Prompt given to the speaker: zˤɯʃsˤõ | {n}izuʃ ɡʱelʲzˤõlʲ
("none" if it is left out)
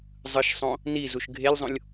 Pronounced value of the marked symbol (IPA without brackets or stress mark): n